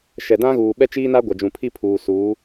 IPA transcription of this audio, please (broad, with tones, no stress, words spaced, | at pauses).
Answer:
ʃɛ˨dã˦ ɣuː˨ɓɛ˦t͡ʃiː˦na˦ ɡʷa˨d͡ʒũ˨pʰi˦ pʰuː˨suː˨˦